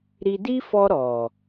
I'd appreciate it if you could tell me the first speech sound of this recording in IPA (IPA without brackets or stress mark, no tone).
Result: ɾ